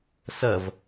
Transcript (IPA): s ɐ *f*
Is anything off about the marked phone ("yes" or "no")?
yes